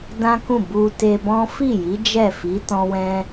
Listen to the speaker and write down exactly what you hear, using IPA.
d ã˦ k ũ˦˨ b u˧ t e˧ b ɔ̃˦ f i˦˨ j i˨˦ d͡ʒ ɛ˦˨ f i˨˦ t ɔ̃˦ w ɛ̃˦

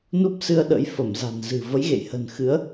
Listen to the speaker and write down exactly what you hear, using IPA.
n u˦˥ p̚ s ɨ˧ ə̯ ɗ ə̰˧˥ j f ə˧˩ m z a̤˨˩ n z ɨ̤˨˩ v ə˨˦ j ɣ ḛ˧˨ j h ə̤˨˩ n x ɨ˨˦ ə̯

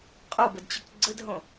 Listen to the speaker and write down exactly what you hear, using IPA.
qʼ o b ə d t͡ɕ ʏ k ɡ͡ǀ ə d ɦ õ

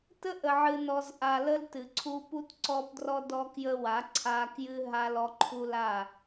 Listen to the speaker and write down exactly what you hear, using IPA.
t ə˦ ʔ ə˨ ʕ ɨ˨ n ɔ˨ z ʔ a˨ l ə˦ l t ɨ˨ ǀʰ u˦ p u˦ t ǀ ɔ˦ p d r ɔ˦ d ɔ˦ k j ə˦ w a˨˦ ǀʰ a˦ k j ɨ˦ ɦ a˦ l ɔ˦ ǃʰ u˦ l a˦˨

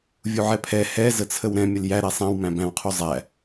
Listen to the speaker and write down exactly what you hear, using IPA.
vʲ u ʕ ɛ pʰ ɛ h ɛ z ə t͡sʰ ə w ɾ ɛ̃ mʲ ə l j æ ɾ ɛ sˤ ã w m æ̃ b æ̃ w qʰ u zˤ æ

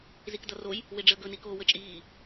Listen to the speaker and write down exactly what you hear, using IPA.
z i k d ʌ r o j | w ɪ ɖ͡ʐ əː ɡ ɵ n i k oː w ə t͡ʃʼ iː

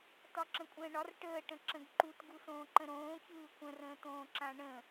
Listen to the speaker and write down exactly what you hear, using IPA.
t ɒ ǁ ə̃ kʷʼ ə̃ː ɳ ɒ r ʈ əː ʈ ə̃ ǁ ə̃ ɡ ǃ u t ɡ u s õː ǃ ə̃ ɾ õː ç ɯː kʷ ə̃ r ə̃ː t̪ õː ǁ ã ɳ ə̃

